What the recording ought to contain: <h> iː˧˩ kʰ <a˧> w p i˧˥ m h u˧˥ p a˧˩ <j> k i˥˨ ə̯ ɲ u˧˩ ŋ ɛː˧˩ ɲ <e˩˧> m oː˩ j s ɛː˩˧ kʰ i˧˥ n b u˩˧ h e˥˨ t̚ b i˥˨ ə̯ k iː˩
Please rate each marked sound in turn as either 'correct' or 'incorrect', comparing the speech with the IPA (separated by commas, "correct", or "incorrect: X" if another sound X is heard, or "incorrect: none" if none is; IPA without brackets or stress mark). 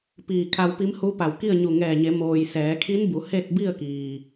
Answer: incorrect: p, correct, incorrect: w, correct